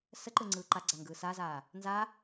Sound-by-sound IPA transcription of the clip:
s ə ǃ ɯ ŋ͡ǀ ɯː ǃ a ɡ͡ǀ a ŋ ɡ ɯː s a z aː | n z a

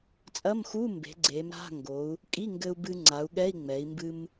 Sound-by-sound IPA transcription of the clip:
t͡sʼ ɐ˧˥˧ m x u˧˥˧ m b e̤˩˧ ɡ͡ǀ e˩˧ m ɾ a̤˧˥˧ ŋ ɡ o˩˧ u̯ | kʼ i˧˥˧ ŋ ɡ ɘ˧ u̯ b ɨ˧ ŋ͡ǀ a˩˧ u̯ ɠ ɛ˧˥˧ i̯ ŋ͡m ɛ˩˧ i̯ m b ɨ˧ m

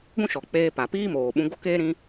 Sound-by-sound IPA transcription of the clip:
ɡʷ ũ˦ ʃ ɔ˨ k͡p eː˧ p a˨ p iː˦ m oː˨ ɓ ũ˧ ɡ o˦ k eː˦ ɾ ĩ˦

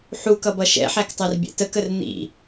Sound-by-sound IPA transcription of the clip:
ħ u k ʌ b ʌ ʃ ɛ̰ ħ æ k tˤ æ r bʲ ɛ̰ t ə k ə r n̪ ḭ

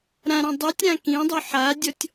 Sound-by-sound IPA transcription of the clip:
ɾ ã ɾ ã dˤ ʉ tʲ ɾ ã k ĩ dˤ ʉ ħ a dʲ ɔ tʲ

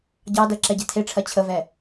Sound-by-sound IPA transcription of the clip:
ɟ ɑ d ɜ ǁ ɛ ɟ ɛ̤ tʰ e ʈ͡ʂʰ ɜ t͡ɕʰ ə v ɛ

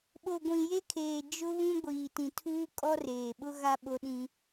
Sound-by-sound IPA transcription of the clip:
ɓ o˨ ɡʷ ĩ˨ j e˦ kʰ eː˨ d͡ʒ ʊ˦ β ũ˦ ɡʷ iː˨ t ĩ˨ tʰ uː˦ kʼ ɔ˦ r eː˨ ɓ ʊ˦ ɣ a˦ ɓ o˦ ɗ ĩ˦

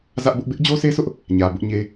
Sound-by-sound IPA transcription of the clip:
z ä˦ ʔ b ʊ˦ ʔ b ɪ˦ ʔ d͡ʑ o˦ sʰ e˦ s ʊ˦ ʔ | ɲ ä˨ b ʊ˦ ʔ ɲ e˦

